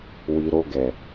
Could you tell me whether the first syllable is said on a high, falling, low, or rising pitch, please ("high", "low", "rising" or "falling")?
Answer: low